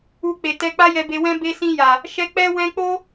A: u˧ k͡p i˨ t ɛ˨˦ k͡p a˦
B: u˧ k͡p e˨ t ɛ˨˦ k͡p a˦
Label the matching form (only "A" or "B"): B